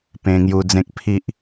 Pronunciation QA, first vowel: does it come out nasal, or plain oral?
nasal